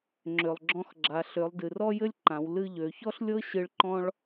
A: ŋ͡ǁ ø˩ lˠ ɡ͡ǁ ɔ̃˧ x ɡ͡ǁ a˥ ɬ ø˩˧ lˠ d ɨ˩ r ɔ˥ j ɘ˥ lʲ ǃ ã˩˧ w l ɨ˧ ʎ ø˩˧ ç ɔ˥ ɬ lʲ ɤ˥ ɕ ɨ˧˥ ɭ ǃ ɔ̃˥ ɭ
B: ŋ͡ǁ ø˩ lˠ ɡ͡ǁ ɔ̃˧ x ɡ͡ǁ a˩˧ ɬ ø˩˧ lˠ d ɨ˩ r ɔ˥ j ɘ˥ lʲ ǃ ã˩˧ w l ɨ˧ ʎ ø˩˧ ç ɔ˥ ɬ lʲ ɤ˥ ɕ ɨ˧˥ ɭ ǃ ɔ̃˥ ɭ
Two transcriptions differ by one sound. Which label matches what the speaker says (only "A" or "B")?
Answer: B